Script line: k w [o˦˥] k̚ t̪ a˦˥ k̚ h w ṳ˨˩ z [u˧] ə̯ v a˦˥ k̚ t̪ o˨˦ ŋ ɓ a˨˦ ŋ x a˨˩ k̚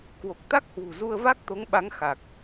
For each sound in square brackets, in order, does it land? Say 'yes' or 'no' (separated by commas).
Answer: no, yes